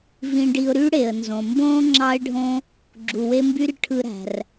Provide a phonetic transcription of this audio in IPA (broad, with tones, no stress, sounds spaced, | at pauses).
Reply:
v ĩ˧ ɖ i˧ ʊ̯ ɾ y˥ ɽ e˩ ə̯ n z õ˩ m b õː˥ ŋ͡ǁ ɑ˧ ɪ̯ ɖʱ õ˧ | ɡ͡ǁ u˩ w e˧ m b y˧ r ʈʰ ɯ˧ ɾ æ̤˩ r